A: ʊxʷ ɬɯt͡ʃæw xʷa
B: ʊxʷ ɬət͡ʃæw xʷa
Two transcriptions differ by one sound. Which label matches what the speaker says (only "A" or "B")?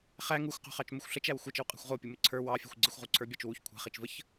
B